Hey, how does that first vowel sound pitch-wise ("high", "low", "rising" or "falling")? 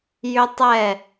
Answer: high